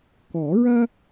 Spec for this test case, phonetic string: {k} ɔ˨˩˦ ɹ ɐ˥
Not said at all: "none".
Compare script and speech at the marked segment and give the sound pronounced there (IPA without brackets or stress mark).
k